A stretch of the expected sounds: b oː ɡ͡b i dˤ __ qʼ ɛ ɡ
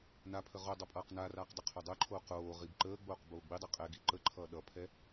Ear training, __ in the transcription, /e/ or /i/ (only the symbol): i